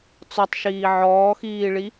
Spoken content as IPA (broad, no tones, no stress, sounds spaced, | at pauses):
t͡s ɔ tˤ ʃ iː ʕ ɔː x iː ɭ i